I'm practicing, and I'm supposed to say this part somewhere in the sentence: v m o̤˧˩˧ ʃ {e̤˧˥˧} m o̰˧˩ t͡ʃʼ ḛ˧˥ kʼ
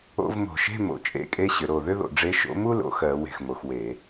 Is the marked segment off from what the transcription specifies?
no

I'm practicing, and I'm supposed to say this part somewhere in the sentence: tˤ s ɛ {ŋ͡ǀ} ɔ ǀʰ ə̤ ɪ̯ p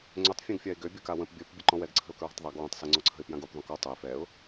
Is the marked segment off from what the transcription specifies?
no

